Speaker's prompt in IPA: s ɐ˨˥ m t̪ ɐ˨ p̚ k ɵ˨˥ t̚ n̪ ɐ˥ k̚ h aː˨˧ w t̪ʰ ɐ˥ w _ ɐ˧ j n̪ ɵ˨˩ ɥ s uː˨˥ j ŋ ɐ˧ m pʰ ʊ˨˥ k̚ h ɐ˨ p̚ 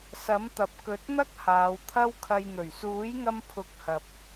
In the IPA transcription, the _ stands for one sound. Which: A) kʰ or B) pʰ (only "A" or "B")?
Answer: A